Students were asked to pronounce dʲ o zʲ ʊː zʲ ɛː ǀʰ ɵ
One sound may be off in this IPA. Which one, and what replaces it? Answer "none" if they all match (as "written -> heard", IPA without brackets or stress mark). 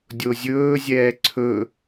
ʊː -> ɵː